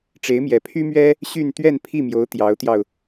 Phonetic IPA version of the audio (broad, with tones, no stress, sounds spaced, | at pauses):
ʈ͡ʂ e˧˥ ɪ̯ m j ɛ˧˥ pʰ y˥ m ɥ ɛ˥ | ɕ y˥˧ n t̪ ɥ ɛ˥˧ n pʰ i˥˩ m j o˧˥ ʊ̯ t̪ j ɑ˧˥ ʊ̯ t̪ j ɑ˧ ʊ̯